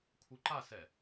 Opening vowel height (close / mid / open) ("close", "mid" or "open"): close